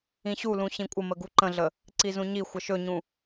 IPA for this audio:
ĩɕulũ ɕĩkʷʼəmə ɡuǃə̃ɮə | ǀizũɲixʷə ʃɵɲũ

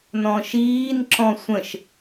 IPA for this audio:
nɔ̃ʃiːn ǁɔ̃sʷə̃ʃ

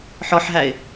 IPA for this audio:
ħɔħɦæɪ̯

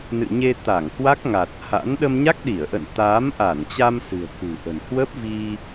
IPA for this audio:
nɨ̰˧˨ɲe˧t̪a˧˩ŋhwa˦˥k̚ ŋa˨˩t̚ha̰˧˥n ɗə˧mɲa˦˥k̚ɗi˧˩ə̯ʔə̰˧˨n t̪aː˨˦mʔa˧˩nt͡ɕa˧m sɨ̤˨˩ə̯kṳ˨˩ʔə̤˨˩n hwə˦˥p̚vi˧

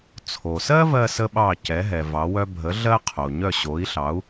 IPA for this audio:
t͡sʰo˩sɜ˥vɜ˧ sə˥ɓɑ˥˩ cɛ˩˥ɦɛ˩ vɑ˩˥wœ˥ bʱə˩˥ ɮɜ˥qʰo˩ɲœ˥˩ ɕo˩˥i̯ɬɑ˩˥u̯

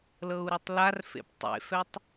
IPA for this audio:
lɤu̯ɾotˤlarfḛp tˤḛfɛtˤ

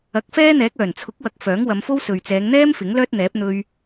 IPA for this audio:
ɐ˨˥k̚fɛː˥n̪ɛː˨˥k̚ œː˨˩nt͡sʰʊ˨˥k̚wɐ˨k̚ fœː˨˥ŋwɐ˨˧mfo˥wsɵ˨ɥ t͡sɛː˨˧ŋn̪ɛː˥m fɪ˨˥ŋlœː˥t̚n̪ɛː˨˥p̚ n̪ɵ˧ɥ

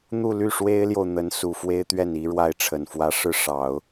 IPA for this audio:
n̪u˥˧ ly˥˩ʂwe˥ɪ̯ljo˨ʊ̯ n̪ə˧˥nsu˨˩fwe˥ɪ̯t̪ɥɛ˥˩n i˥ɻwa˥˩ɪ̯ʈ͡ʂʰə˨˩nfwä˥ ʂɻ̩˥˩ ʂɑ˨˩˦ʊ̯

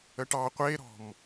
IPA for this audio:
əʈɑ qʷeɾɔ̤m

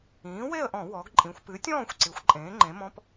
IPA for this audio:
ĩː˩˥we˥˨ə̯ʔɔ̃˧˩˧ wɔ˩˧ɡǃʼĩ˩˧xʷpɨ˩˥tʲɔ̃ː˥˨xʷ ǀi˩˥xʷǃʼẽː˩˥ ŋ͡ǃẽ˩˥mɔ̃˧˥˧p

